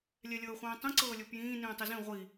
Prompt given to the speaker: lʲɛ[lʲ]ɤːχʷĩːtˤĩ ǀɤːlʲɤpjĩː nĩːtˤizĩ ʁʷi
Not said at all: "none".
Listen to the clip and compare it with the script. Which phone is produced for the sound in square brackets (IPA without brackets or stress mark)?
lʲ